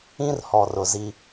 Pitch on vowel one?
high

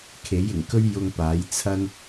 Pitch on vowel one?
rising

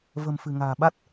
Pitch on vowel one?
low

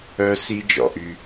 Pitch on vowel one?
high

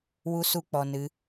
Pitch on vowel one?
high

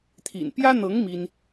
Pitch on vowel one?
low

